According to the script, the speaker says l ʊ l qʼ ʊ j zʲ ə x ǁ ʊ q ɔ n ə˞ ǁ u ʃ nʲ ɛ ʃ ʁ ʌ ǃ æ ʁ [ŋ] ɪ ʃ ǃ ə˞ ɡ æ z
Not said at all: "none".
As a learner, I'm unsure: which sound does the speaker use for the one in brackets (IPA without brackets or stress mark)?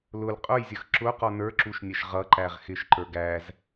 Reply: x